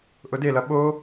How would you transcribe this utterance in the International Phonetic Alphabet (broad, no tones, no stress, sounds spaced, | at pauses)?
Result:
ʔ ʊ d e l ʌ ɓ o